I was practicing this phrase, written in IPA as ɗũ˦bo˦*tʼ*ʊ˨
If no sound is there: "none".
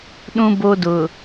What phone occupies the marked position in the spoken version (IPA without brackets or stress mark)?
d